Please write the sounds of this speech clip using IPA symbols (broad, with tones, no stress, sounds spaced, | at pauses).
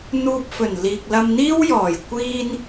n̪ uː˧ p̚ f ɵ˨˩ n l iː˨ k̚ l ɐ˧ m n̪ iː˥ w j ɔː˨˩ j kʷ iː˧ n